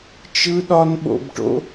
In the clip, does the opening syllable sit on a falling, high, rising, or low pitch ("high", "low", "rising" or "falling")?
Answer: high